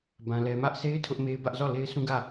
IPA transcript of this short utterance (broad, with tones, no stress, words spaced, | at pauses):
bã˦lɛ˦ mä˦ʔsʰe˦ɪ̯ tʰʊ˦ʔme˦ɪ̯bä˦ʔ zɔ˦˨le˦ɪ̯sʰũ˦ ɡä˦˨